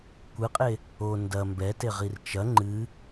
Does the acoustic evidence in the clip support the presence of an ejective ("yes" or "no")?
yes